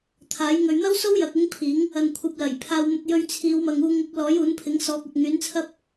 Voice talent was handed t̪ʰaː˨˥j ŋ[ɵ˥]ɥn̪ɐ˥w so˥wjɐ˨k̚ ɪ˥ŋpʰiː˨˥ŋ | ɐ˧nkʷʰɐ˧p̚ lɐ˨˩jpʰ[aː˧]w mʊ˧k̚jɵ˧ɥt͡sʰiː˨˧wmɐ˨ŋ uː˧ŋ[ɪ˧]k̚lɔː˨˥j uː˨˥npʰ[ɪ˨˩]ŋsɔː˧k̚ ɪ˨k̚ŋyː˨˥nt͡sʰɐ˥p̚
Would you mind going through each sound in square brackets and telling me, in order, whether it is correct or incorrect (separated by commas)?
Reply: incorrect, correct, correct, incorrect